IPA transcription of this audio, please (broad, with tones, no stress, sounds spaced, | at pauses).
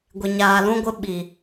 ɡʷ ɪ˨ ɲ aː˨ l ũ˦ ɡʷ ɪ˦ ɓ i˨